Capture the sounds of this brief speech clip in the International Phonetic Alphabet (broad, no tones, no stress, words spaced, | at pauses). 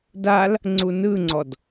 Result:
dal | ŋ͡ǀunɯŋ͡ǀɔd